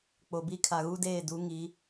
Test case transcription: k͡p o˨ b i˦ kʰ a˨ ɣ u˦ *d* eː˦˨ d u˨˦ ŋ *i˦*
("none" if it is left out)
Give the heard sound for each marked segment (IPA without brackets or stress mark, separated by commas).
d, i˨˦